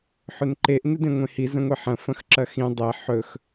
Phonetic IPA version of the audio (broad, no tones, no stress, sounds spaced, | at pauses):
ħ ɵ n ǃ e ʔ n ɨ d ẽ ŋʷ ẽ h i z ɐ̃ ŋʷ i ħ ɐ̃ f ɐ̃ x ǁ ɐ x ĩ dˤ e ħ ɵ x